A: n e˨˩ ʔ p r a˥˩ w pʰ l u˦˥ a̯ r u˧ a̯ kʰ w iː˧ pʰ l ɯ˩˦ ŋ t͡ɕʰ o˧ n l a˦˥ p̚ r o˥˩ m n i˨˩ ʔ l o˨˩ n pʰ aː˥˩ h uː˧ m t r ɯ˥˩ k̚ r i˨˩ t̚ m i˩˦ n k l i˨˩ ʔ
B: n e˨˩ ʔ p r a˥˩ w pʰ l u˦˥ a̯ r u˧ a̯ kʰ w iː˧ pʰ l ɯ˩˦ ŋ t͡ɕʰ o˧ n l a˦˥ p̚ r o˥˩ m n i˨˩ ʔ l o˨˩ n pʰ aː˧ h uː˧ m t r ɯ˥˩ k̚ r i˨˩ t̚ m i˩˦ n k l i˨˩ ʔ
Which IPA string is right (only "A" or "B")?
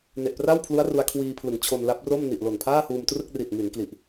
A